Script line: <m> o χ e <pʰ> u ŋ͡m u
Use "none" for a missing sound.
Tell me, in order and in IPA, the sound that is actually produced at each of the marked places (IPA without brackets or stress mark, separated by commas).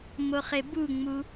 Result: m, b